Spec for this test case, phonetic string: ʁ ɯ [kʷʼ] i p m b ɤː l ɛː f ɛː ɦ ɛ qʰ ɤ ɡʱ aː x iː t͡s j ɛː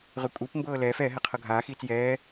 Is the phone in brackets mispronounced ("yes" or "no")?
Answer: no